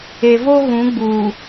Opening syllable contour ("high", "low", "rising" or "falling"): low